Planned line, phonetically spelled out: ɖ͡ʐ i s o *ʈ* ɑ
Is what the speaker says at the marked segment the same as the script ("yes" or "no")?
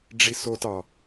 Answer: no